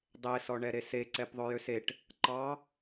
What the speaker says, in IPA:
dˤesɔ ɳɛɾese ǀɛpðˤɵjøseʈ | ǃɑ

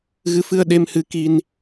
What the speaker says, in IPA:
ɣɨ˧˥fɨ˧ə̯ɗe˧m hɨ˧˥ki˧n

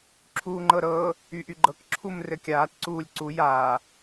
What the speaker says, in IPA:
ǁʰuːŋ͡ǃɤɾɤ | yʔyɡ͡ǃɤk ǁʰumrɘkʲaːt ǀuːlʲǀu ja

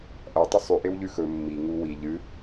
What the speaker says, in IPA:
ʔɐ tˤɵsˤʉ ʔewʎʉxɵ mːi ŋuwi ʎɨ

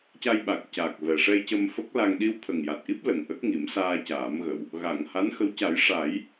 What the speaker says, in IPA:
ca˧jɓa˨˩k̚caː˨˩k̚ vɛ˨˩ ʂɛ˧jcə˧mfə˦˥k̚la˧ŋ ɗi˧wt̪ʰə˨˩ŋja˨˩t̚ʔi˦˥p̚ lə˨˩ŋʔə˦˥k̚ŋi˨˩˦m saː˧caː˨˩˦mɣə˨˩˨w | ɣa˨˩˨ŋha˧˥nxə˧˥w ca˨˩˦jʂa˨˩˦j

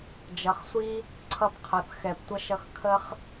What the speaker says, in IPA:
d͡ʒʌ˩χsʷi˦ | ǀʰʌ˨pqʰʌ˩θ xɛ˨ptʷʌ˥ʃʌ˦x kʰə˥χ

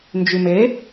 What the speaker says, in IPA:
nd͡ʒyme

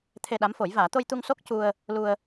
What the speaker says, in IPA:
t̪ʰe˧ɗa˧˥m fo˨˩˦jvaː˨˩˦ t̪o˧jt̪u˧ŋ so˦˥k̚cu˧ə̯ | lu˧ə̯

